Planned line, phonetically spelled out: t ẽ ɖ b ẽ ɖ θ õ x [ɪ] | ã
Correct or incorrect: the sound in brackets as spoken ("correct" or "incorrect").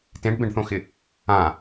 correct